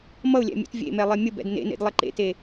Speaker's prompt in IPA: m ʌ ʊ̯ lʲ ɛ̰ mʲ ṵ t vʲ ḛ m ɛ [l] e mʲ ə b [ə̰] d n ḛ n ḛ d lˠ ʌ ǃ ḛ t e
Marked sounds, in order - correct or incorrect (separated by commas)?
incorrect, incorrect